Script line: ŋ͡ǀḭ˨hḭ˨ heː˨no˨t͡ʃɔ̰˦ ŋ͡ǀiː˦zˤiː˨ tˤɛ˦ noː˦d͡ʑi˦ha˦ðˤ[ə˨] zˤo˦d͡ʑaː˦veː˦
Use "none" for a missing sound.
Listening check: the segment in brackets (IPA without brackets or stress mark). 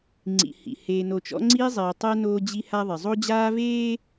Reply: ɪ˨